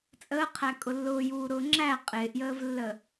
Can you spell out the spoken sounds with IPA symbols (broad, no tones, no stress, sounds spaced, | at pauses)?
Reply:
t͡sʼ əː qʰ æ kʼ ʊ lː ʊː j uː ɾ ʊː ŋ͡ǁ æ qʼ ɪː ʔ j əː v lː ə